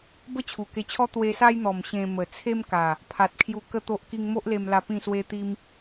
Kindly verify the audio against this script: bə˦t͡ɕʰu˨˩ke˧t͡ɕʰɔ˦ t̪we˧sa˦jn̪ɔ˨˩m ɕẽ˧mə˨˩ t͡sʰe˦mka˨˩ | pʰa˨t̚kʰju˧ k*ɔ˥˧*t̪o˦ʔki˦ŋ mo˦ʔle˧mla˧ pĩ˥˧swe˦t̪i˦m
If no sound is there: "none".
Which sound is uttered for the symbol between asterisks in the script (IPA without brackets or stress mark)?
ə˥˧